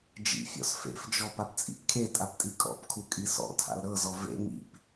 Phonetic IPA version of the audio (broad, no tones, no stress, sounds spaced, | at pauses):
d͡ʒ ḭ fʲ ɔ̰ s f ḛ f d͡ʒ ɔ p a p t͡sʼ ḭ p kʰ e tʼ a p tʼ i kʼ ɔ̰ p kʰ u kʼ i s ɔ̰ tʰ a̰ l ɾ ɤ z ɔ v ḛ ŋ ḭ p